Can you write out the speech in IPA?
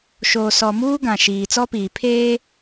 ʃ oː˨ s ɔ˨ m uː˦ ɡ ã˨ ʃ iː˨ t͡s ɔ˦ p iː˨ pʰ eː˦

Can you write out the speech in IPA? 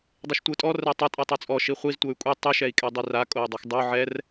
dˤ e ʃ tʷ ɯ tʼ ɔ r ɛ tˤ ɤ tʼ e tˤ o t͡sʼ ɔ ʃ i χʷ i z tʷ ɤ y̯ kʷʼ i tˤ i ʃ ɛ i̯ kʼ ɛ dˤ i r a kʼ o y̯ dˤ ɤ x dˤ o ʕ ɛ r

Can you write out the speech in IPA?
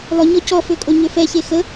lˠ ø ɲ ɔ c ɔ f ø kʼ o ɲ ø f ɛ ç e x ə

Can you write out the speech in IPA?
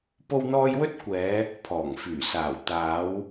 p o˥ w n̪ ɔː˥ j w ɵ˥ t̚ kʷ ɛː˨˧ | pʰ ɔː˨˩ ŋ f yː˨˩ s aː˨˩ w t̪ aː˨˧ w

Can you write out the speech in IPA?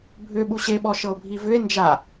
bʱ ʏ ɓ u ɕ e ɓ ɔ ʃ ɤ o̯ bʱ i v ʏ e̯ n d͡ʒ a

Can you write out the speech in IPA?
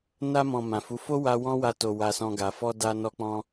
n a˧ m ɔ̃˨ m ã˨ f u˨˦ f o˦ w a˧ w ɔ̃˦ w a˧ t o˨ w a˧ s ɔ̃˧ ɡ a˨ f ɔ˧ d a˧ n ɔ˧ k͡p ɔ̃˧

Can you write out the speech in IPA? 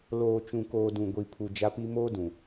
l oː˨ t͡ʃ ũ˨ k oː˨ d ũ˨ ɡʷ i˨ pʰ u˨ d͡ʒ a˦ p i˦ m oː˦ d ũ˨

